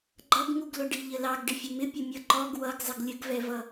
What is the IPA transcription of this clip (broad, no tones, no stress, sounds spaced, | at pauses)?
ɡ͡ǃ ʌ ɡ ŋ u ɡ l ʊ ɖ i ʎ ə l ɑ ɡ ɖ ɪ fʲ ʊ m ɪ pʲ ʊ mʲ ʌ ǃ ɔ ɡ w ʌ ɡ zˤ ɪ ɡ lʲ ə ɡ v ɛ v ʌ